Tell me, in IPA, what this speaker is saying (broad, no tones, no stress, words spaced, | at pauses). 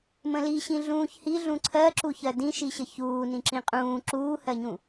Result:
mə̃liɕĩ ɮũːçhiɮũ ǀʰɜǁuçɜ dĩʃiɕə çuː nĩǁĩqʼũː ǁuːhɜɲũ